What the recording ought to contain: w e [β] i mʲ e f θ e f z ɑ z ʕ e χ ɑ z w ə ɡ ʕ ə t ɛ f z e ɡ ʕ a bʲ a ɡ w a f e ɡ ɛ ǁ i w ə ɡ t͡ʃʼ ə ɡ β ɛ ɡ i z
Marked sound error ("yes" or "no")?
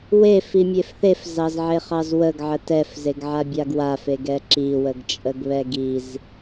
yes